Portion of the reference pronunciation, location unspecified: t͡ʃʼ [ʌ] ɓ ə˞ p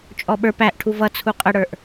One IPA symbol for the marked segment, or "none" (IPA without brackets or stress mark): ɔ